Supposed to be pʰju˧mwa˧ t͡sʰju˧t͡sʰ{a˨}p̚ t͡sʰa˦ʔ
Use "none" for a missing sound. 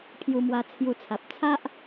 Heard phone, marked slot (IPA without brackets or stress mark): a˨